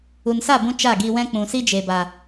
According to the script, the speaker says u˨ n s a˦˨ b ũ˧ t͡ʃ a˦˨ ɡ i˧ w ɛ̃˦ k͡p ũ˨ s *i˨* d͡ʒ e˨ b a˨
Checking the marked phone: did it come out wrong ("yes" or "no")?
yes